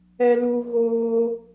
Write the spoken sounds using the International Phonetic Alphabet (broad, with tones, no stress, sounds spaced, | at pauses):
ɛ˧ l u˧ ɣ oː˧